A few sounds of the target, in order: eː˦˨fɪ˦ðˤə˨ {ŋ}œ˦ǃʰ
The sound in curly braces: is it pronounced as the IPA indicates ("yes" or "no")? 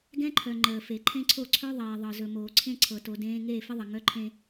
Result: yes